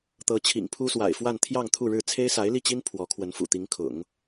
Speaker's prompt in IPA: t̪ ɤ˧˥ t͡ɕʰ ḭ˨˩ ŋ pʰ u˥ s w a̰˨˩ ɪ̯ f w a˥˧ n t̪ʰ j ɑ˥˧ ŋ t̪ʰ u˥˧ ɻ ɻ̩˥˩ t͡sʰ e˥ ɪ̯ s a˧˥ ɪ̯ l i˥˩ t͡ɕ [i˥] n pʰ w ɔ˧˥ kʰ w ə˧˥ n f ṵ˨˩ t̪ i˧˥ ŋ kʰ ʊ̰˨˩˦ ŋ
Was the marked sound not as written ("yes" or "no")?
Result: no